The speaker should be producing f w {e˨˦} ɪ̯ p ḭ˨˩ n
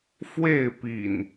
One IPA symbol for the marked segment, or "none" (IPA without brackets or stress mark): e˥˨